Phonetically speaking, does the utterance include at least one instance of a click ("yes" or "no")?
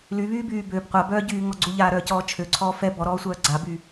yes